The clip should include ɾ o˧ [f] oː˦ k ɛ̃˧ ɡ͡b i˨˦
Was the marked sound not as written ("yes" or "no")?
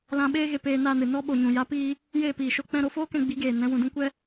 no